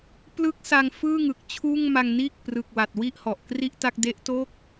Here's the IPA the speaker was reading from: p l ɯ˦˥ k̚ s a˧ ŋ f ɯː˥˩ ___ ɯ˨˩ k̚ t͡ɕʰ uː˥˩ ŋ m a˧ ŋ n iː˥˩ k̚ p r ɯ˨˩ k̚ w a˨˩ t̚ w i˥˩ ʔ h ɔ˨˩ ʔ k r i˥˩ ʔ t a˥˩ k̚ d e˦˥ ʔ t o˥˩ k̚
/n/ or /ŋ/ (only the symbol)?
ŋ